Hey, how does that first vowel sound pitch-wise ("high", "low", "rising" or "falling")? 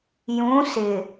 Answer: rising